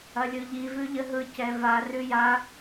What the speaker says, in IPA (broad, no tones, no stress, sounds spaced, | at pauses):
ɐ lʲ ɯ ʎ i v ʉ ʎ ə ɦ ɯ c ɛ v a r ʉ j a